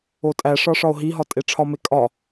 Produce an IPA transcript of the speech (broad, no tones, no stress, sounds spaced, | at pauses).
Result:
o tʼ æ ʂ ɒ ʂ ɒ o̯ ɦ i ɦ ɒ tʼ e ʈ͡ʂʰ ɒ m e kʼ ɒ